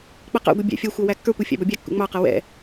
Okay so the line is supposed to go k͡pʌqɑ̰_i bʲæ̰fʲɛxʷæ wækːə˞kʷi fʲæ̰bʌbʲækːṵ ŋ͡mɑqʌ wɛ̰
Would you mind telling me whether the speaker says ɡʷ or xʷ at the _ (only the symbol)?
ɡʷ